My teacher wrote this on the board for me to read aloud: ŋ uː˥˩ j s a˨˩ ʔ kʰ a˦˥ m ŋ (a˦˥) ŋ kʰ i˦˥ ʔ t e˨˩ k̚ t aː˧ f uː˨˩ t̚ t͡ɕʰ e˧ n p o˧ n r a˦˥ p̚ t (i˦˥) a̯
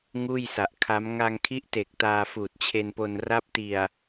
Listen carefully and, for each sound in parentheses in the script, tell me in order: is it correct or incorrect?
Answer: incorrect, incorrect

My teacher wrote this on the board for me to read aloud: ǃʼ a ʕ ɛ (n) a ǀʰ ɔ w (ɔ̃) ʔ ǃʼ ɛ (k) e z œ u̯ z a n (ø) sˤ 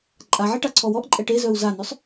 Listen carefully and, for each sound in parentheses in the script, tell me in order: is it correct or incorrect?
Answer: incorrect, incorrect, incorrect, correct

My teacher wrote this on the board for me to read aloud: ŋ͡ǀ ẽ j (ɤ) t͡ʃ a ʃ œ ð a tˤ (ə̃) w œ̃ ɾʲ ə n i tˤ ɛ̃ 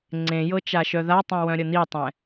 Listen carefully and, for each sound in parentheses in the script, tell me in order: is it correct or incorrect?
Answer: correct, incorrect

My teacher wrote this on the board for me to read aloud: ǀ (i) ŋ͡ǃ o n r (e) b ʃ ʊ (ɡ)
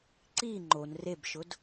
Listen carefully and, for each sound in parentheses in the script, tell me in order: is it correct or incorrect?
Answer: correct, correct, incorrect

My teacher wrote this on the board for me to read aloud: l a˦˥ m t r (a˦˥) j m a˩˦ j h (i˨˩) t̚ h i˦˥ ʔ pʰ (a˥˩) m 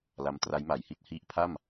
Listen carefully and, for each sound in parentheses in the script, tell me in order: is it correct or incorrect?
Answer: correct, incorrect, correct

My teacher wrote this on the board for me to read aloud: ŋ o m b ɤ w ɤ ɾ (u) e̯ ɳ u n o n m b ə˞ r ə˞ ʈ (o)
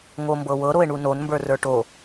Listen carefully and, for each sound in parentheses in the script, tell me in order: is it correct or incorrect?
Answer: incorrect, correct

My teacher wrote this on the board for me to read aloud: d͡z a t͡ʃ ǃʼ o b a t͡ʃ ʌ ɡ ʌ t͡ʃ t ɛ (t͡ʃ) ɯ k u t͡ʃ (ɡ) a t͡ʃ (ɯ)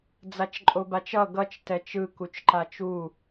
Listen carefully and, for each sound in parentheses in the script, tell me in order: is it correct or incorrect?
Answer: correct, incorrect, incorrect

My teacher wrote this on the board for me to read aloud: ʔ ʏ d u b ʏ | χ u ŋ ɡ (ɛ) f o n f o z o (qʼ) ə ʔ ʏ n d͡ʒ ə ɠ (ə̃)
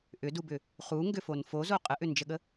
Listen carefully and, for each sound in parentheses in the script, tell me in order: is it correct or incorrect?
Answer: incorrect, correct, incorrect

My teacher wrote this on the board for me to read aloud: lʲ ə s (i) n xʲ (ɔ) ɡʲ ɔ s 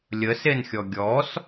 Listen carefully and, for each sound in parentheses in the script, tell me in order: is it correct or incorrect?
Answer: incorrect, correct

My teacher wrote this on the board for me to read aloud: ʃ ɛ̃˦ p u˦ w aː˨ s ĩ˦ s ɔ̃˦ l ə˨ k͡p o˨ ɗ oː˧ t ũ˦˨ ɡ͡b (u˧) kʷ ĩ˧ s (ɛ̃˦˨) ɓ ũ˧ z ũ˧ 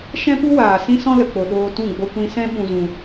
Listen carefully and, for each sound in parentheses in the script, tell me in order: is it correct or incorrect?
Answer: incorrect, incorrect

